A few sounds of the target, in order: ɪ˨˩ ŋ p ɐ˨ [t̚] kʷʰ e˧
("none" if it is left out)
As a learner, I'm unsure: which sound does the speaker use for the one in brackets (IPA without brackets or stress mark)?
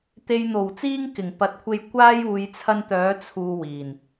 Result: t̚